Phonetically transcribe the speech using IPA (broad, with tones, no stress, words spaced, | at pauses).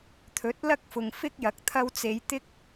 t̪ʰɵ˨˥t̚lɐ˥k̚fʊ˨ŋ fɪ˥k̚jɐ˨˥k̚ t̪ʰɐ˧wt͡se˨˧j t̪ɪ˥k̚